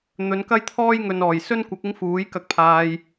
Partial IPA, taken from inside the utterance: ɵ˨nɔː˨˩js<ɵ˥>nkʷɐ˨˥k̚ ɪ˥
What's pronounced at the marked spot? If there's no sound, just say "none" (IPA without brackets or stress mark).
ɵ˥